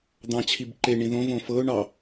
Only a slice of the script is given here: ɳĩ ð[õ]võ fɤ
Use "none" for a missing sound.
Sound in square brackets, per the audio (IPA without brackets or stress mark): õ